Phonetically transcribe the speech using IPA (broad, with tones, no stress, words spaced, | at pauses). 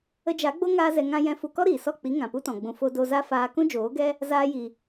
ə˧d͡ʒa˨˦ɡ͡bo˦ ŋaː˦zɛ˧ ŋã˧ jɛ̃˧fu˧kɔ˦ɾiː˨ sɔ˦˨k͡pi˨˦ ŋã˨pu˦tɔ̃˨ɡ͡bũ˧ fo˧do˧za˦ faː˧ kũ˦d͡ʒoː˨˦ɡɛ˦ | zaː˧ji˨